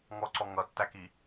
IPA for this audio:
ŋɔǀɔ ŋʌtːæki

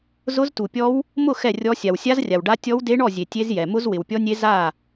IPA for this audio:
zʊ˦˥ztu˨pʲɔ˦˥w | mʊ˥˨ xɛ˥˨rʲɔ˦˥ sʲa˨wsʲa˦˥zrʲa˨wɖa˦˥ tʲɔ˦˥wde˦˥ɳɔ˥˨zʲe˨ tʲe˦˥zjɛ˨ mʊ˦˥zwɪ˨wpʲɔ˦˥nʲe˦˥ za˥˨

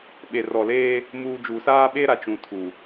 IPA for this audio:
ɓe˨rɔ˨leː˦ | muː˨ d͡ʒuː˨saː˦ɓeː˦ ɾa˨t͡ʃũ˨tʰu˨

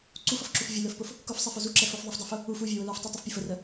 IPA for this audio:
ǀufʌfǁuf vʲələ˞fpʊf | kʊfsˤɛfʊ zuǁɛ fʊf ðˤufdˤə˞fʊ | uf uvʲəwʊ lə˞ftˤutˤəfpʲʊ fərə

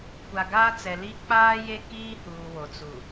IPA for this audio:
kʷa˨ɡaː˦t͡sɛ˨li˦ k͡paː˦je˦ kiː˦huː˨ wo˨t͡su˨

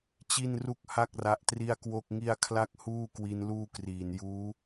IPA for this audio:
t͡ɕi˥˩nru˥˩k̚ha˥˩k̚ ra˦˥ʔtri˥˩a̯kwo˥˩k̚ŋi˥˩a̯ kʰla˥˩k̚huː˥˩kwi˧n luː˥˩kriː˨˩n juː˦˥

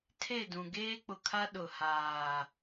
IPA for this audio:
tʰe˦˨dũ˨ ɡeː˦k͡pʊ˨kʰa˦ ɗʊ˨ haː˨

